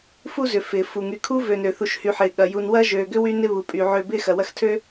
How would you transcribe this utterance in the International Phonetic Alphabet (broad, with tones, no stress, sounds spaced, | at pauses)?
f u˦ z ʏ˩ f ɪː˩ f u˩ ŋ y˨ kʰ u˥ v ø˨ n ø˩ θ u˨ ʃ h y˨ ħ ɪː˩ ɠ ɐ˩ j u˨ n w ɐ˥ ʒ øː˨ ɡ ʏ˥ w y˦ n ɪ˦ β u˩ pʼ y˩ ʕ ø˨ b ɪː˥ x ɐ˩ w ɐ˦ x tʰ ø˦